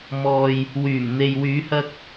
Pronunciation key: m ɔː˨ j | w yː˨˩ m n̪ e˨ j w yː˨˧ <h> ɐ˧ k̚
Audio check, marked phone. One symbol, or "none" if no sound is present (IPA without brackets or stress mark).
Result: h